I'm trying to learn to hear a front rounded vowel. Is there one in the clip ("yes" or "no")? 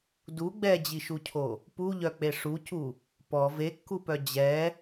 yes